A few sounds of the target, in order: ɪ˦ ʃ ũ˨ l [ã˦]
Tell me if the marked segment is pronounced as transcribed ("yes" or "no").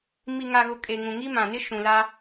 no